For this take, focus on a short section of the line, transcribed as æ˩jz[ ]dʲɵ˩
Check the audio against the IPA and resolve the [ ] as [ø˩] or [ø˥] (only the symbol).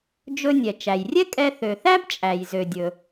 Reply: ø˩